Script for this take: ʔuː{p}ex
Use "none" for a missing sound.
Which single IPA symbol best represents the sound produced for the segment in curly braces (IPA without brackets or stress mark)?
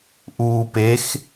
p